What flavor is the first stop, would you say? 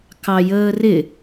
plain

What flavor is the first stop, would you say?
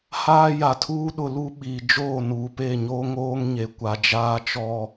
aspirated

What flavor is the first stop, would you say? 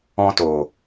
plain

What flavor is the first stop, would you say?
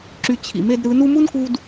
click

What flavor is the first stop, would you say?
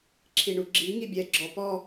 click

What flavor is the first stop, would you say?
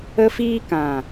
plain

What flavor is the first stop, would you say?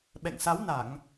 implosive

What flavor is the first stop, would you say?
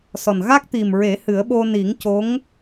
plain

